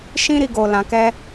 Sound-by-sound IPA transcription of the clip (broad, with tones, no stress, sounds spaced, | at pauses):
ʃ ĩ˦ ɾ i˧ ɡ o˨ l ã˨ k ɛ˧